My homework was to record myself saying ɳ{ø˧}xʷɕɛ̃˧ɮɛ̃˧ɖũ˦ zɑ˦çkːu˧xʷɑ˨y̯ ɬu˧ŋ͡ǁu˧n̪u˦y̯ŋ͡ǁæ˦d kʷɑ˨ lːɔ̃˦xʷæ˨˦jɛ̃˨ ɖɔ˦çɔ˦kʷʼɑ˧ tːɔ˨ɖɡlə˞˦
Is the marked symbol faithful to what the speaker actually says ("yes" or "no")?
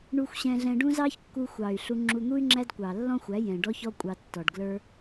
no